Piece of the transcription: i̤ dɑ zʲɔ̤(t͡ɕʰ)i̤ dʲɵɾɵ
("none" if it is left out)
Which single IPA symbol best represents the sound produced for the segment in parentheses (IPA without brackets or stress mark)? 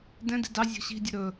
ɕ